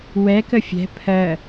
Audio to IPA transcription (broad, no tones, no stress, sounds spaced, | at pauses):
w ɛ k ə fʲ ɛ̤ pʰ ɜ